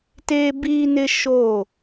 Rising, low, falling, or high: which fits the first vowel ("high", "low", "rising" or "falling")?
high